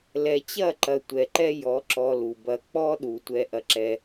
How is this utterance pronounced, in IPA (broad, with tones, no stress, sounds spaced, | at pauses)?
l ɛ˨ t͡ɕ ɐ˦˨ ǃ ɐ˨ tʷ ɛ˨ ǃ ɛ˦ j ɔ˨˦ ǁ ɔ˧ l u˨ b ɐ˧ k͡p ɔ˦ ɗ u˨ tʷ ɛ˧ ʔ ɐ˧ ǁ ɛ˧